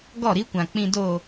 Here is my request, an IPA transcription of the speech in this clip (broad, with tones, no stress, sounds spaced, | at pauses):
ɡ ɔ˦˨ ɾ i˦ kʷ ã˨ k͡p ĩ˨ d o˨